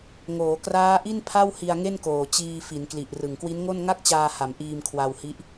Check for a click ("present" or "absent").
absent